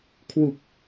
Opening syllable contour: low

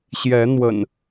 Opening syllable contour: rising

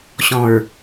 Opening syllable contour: low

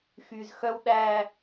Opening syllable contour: low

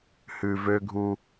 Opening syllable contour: low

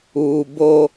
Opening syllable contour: high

